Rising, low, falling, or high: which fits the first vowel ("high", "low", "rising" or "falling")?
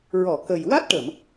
low